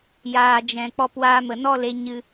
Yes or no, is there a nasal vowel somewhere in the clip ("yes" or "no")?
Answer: yes